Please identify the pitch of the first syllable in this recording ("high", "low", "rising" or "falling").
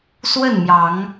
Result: falling